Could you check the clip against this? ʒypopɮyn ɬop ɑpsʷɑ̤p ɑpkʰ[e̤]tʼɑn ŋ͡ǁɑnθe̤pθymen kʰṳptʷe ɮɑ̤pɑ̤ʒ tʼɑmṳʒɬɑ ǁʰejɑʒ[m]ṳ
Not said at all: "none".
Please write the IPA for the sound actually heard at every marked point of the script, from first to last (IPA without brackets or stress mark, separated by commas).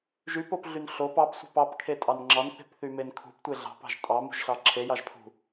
e, pʰ